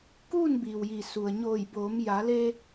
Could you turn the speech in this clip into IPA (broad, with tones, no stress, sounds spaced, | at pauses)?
k uː˥˨ n b iː˩ w j i˩ s u˩ ə̯ ɲ oː˧˩ j b oː˩˧ m j a˩˧ l eː˧